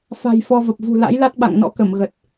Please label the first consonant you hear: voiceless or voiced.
voiceless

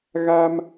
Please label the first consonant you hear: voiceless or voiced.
voiced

